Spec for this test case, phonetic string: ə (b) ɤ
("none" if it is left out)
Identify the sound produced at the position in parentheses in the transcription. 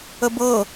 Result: b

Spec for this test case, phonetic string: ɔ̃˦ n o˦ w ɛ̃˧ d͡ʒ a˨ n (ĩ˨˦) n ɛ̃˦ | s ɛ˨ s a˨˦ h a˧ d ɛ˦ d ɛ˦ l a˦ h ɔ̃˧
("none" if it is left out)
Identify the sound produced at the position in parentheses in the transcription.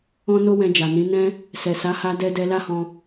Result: ĩ˨˦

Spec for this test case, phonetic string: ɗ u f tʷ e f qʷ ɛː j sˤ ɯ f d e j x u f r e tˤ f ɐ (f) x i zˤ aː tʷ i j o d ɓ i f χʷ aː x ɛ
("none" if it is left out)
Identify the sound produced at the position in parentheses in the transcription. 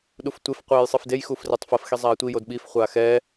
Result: f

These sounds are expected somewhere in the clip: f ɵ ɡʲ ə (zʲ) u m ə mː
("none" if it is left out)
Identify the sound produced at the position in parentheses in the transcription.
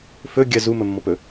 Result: z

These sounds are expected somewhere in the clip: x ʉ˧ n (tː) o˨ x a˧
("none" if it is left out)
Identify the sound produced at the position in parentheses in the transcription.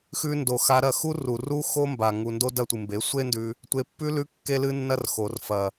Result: d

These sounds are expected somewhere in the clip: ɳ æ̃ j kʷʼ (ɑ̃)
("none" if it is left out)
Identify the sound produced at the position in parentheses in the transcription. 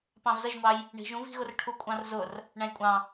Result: ɑ̃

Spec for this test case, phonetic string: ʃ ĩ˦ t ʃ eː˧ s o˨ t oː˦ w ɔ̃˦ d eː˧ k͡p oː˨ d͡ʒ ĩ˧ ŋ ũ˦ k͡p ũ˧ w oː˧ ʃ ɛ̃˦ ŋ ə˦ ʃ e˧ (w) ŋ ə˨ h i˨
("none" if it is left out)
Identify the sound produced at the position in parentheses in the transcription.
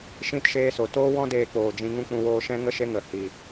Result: none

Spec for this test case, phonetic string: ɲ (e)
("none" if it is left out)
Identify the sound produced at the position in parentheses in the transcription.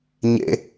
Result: ḛ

